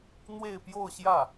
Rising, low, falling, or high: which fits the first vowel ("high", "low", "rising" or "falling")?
falling